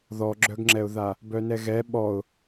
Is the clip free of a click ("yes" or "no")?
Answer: no